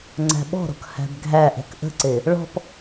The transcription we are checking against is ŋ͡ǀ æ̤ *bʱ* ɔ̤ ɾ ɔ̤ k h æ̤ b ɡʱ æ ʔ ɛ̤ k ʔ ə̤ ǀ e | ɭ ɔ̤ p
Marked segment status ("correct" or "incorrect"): incorrect